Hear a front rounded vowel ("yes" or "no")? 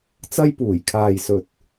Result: no